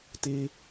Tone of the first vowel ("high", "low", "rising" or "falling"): low